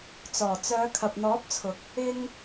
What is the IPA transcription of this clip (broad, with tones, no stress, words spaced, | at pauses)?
t͡sɔː˨˩t͡sœː˨˧kʰɐ˨p̚ n̪ɔː˨˥p̚t͡sʰʊ˨k̚ | ɪ˧ŋ